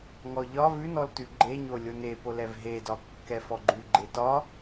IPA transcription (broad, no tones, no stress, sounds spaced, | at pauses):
ŋ ɔ ʎ ɒ v ʉ n ɔ l t ʉ ɡ͡ǃ e ɲ o lʲ o n e p o l ɛ v ɦ e d ɒ kː ɛ f ɔ ɡ͡ǃ ʉ ɡ͡ǃ e t ɒ